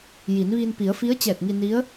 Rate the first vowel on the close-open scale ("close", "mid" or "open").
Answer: close